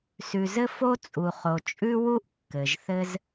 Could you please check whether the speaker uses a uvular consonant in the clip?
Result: yes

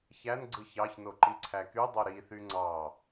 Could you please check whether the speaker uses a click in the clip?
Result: yes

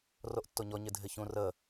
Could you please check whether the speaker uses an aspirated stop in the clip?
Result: no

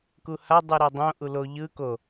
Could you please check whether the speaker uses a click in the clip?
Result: no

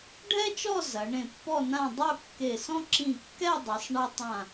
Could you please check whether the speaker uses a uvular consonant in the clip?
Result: no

